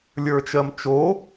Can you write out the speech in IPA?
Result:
lʲ ə˞ t͡ʃ ɜ m t͡ʃ o

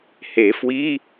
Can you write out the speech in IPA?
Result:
h e˨˩˦ f w i˧˥˧

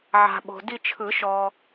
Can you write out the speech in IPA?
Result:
ʕ a̤˨ ɓ o̤˨ d i˦˨ t͡ʃʰ ɯ˨˩˦ ʃ ɔ˨

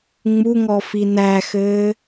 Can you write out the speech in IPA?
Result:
ŋ͡m u ŋ ɔ f i n æ x ɘː

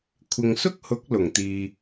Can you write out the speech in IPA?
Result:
kʷʰ ɪ˨ ŋ s ʊ˥ k̚ h ʊ˨˥ k̚ l ʊ˨˩ ŋ t̪ iː˨

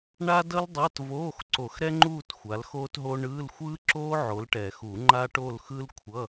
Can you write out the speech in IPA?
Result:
ɳ a˥ d ʌ˥ l dˤ a˧˥˧ t v oː˧˥˧ x ǀ o˨˩˦ x ɾ ɛ˥ ŋ͡ǃ uː˥˧ t xʷ a˨˦ l x oː˥ t ɦ o˥ ɳ ɯː˧˥˧ l xʷ ɯː˥ ǁ oː˥ ʕ o˨˦ l ʈ ɛ˨˩˦ x u˨˩˦ ŋ͡ǃ a˥ ʈ o˥˧ l x ɯ˥ l kʷʰ ʌ˧˥˧

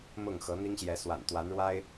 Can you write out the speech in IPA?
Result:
m ʊ˥˨ ŋ x ɤ˨˦ n̪ i˦ ŋ ɕ j ɛ˨˦ s w a̰˨˩ n t̪ w a˨˦ n ɻ w a˦ ɪ̯

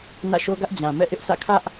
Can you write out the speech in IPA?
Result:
n ä̰˦˨ ʃ o˦ ɡ ä˦ ʔ d͡ʑ ã˨ m ɛ̰˦˨ ʔ ɪ˦ ʔ sʰ ä̰˦˨ kʰ ä˦ ʔ

